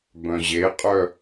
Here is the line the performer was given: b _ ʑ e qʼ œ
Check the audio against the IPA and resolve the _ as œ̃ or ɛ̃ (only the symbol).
œ̃